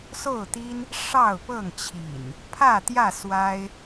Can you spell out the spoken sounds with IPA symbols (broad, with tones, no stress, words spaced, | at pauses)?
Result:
so˥˨ʊ̯t̪i˦n | ʂɑ˥˨ʊ̯pɤ˥˨ŋt͡ɕʰḭ˨˩n | pʰä˥˨t̪jä˥˨ swa˦ɪ̯